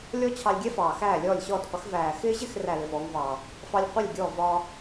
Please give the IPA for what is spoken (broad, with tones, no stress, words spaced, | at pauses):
lʲɔ˥t͡ɕʰɑ˧lʲɡʲɛ˥fɑː˩ xæː˥˩lʲɔː˥˩lʲɕɔː˥˩tqʷɪ˩˥x væː˩xɪː˧ʑɪ˥˩x ræ˥˩lɪ˥˩fɔː˩˥ŋvɑː˩ | fɑ˥lʲ qʷɪ˥˩lʲɡʲɔ˥˩vɒː˧